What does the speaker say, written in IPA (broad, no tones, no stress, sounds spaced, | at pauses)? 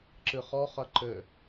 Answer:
ǁ ɨ χ ɔ χ ɐ ǃ ɘ